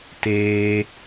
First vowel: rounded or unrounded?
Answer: unrounded